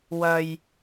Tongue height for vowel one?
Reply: low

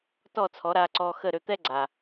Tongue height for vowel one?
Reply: mid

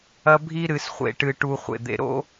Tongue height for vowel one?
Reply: low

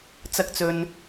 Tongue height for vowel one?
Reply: low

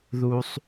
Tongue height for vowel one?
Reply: high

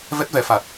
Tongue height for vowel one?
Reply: mid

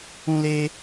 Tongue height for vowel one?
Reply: high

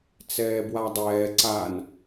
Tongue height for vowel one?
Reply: mid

